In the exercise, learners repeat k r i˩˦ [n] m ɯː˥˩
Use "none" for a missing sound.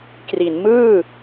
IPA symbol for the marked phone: n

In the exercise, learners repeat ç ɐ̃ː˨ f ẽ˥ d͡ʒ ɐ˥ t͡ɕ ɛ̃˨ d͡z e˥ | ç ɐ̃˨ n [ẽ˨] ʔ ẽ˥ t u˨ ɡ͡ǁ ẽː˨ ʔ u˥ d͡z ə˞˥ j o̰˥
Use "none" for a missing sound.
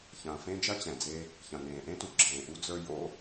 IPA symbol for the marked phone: ẽː˨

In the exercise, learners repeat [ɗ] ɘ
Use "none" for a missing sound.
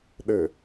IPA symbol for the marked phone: ɗ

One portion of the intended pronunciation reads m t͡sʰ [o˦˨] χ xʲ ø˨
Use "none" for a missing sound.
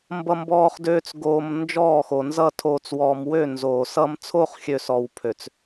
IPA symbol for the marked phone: o˦˨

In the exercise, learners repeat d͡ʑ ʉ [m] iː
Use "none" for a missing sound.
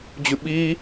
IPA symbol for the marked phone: ɓ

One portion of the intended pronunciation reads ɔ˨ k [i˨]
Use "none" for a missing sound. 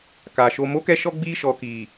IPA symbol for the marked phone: i˨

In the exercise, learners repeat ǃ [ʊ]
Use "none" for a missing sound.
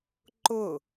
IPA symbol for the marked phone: ʊ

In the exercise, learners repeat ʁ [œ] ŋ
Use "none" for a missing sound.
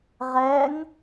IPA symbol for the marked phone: ɛ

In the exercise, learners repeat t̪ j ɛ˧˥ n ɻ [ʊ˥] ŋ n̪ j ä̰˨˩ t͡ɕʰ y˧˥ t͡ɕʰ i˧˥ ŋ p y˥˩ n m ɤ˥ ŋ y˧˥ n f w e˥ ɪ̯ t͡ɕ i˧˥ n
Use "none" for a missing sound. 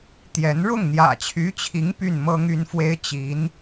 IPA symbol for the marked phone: ʊ˥˩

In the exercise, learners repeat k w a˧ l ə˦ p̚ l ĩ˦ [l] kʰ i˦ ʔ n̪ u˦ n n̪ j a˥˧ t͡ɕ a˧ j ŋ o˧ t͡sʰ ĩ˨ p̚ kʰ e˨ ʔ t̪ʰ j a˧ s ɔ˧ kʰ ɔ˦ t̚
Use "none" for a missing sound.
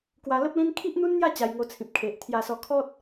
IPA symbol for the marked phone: n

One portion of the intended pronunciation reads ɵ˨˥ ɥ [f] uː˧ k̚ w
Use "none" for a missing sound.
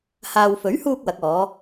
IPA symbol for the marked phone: h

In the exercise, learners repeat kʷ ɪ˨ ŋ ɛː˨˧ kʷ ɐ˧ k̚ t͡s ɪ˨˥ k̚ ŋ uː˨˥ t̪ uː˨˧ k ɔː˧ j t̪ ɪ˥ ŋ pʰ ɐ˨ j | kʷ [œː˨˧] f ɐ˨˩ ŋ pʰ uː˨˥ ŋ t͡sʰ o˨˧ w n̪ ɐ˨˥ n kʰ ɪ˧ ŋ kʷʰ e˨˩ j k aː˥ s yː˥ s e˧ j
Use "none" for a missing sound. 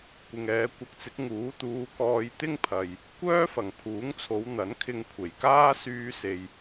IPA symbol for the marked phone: œː˥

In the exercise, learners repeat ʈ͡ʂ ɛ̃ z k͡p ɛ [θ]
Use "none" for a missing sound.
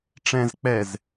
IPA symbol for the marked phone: z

